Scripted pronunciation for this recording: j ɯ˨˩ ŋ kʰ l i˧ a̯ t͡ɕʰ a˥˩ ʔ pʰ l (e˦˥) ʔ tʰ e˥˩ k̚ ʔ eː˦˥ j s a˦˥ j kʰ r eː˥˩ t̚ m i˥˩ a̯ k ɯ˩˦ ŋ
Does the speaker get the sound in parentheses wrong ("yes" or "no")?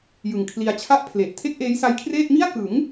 yes